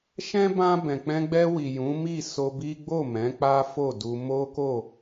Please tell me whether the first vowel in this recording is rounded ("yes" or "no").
no